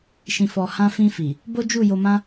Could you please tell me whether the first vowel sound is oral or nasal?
nasal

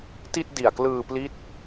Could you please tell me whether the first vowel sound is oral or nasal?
oral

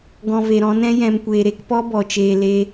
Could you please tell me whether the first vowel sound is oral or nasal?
nasal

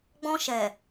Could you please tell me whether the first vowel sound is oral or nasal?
nasal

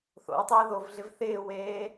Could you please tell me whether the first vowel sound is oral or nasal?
oral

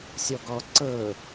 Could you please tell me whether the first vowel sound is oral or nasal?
oral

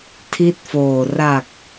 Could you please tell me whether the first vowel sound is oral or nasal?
oral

